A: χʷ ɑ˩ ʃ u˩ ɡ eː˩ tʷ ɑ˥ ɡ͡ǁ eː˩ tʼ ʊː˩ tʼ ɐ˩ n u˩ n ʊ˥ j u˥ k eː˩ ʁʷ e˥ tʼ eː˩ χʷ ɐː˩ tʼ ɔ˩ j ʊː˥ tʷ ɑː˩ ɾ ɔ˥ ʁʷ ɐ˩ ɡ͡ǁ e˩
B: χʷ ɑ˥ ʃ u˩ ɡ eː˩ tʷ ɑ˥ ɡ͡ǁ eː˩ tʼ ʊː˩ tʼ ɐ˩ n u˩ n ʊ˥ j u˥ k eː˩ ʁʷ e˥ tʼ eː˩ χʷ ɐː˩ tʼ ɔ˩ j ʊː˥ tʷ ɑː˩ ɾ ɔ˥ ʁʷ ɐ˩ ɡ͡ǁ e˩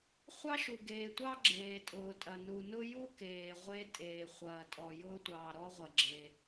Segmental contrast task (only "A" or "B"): B